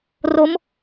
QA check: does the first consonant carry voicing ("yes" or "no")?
yes